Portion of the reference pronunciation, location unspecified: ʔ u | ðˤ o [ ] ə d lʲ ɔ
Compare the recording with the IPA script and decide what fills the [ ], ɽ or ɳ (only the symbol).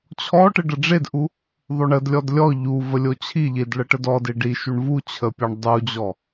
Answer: ɳ